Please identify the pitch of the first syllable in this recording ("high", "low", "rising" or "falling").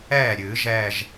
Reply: falling